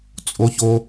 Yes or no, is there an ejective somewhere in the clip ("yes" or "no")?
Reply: yes